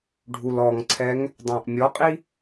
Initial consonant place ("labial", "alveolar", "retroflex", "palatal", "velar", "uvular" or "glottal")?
retroflex